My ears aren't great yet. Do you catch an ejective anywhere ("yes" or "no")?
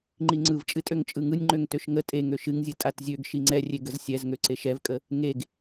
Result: yes